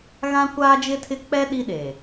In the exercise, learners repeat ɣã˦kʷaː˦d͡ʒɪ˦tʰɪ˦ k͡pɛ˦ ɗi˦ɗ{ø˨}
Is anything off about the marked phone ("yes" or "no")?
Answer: yes